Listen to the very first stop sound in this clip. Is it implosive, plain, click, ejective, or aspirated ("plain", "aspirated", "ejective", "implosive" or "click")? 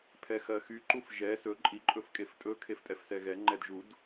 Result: aspirated